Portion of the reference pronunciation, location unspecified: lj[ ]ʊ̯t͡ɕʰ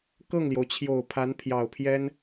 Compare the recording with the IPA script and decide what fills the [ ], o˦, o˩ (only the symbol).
o˩